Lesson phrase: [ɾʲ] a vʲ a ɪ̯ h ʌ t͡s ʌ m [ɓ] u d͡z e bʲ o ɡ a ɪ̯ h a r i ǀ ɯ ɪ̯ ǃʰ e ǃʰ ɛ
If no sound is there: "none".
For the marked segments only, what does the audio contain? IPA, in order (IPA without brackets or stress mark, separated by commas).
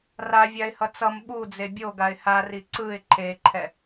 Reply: r, ɓ